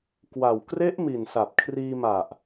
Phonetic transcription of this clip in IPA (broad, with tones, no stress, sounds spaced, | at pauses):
k w a˨˩ w k r e˦˥ ʔ m i˨˩ n s a˨˩ p̚ kʰ r iː˧ m a˨˩ ʔ